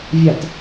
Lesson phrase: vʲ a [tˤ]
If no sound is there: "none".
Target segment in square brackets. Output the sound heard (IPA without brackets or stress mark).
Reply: t